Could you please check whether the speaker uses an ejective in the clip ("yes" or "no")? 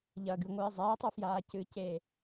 no